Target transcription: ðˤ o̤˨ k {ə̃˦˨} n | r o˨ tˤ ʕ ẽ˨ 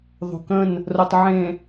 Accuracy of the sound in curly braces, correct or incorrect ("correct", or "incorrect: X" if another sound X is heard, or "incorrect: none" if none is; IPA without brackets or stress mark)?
correct